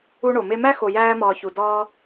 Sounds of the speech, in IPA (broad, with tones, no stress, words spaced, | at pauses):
u˦ɳo˩me˦ mæ˥ xo˨jæː˦mɒː˨çu˩ dɒː˦